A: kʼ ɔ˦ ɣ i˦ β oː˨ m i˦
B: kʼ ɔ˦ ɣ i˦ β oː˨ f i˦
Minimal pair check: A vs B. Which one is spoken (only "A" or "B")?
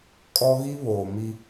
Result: A